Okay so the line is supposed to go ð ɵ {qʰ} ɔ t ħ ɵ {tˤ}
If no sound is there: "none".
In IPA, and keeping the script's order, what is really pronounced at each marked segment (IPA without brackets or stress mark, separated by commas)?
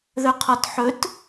qʰ, t